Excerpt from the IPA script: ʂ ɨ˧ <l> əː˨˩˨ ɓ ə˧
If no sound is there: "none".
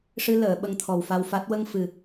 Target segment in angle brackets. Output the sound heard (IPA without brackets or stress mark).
l